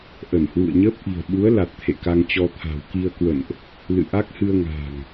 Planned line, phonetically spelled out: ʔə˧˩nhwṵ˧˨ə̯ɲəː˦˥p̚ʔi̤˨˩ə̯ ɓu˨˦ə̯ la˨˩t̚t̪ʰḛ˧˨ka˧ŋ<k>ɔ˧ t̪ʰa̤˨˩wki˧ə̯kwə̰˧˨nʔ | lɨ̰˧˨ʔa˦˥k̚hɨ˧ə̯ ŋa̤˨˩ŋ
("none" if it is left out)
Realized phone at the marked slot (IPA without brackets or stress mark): t͡ɕ